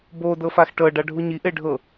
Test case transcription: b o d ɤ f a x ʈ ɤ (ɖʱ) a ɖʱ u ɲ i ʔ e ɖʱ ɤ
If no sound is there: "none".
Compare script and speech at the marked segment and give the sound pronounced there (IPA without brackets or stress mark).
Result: ɖ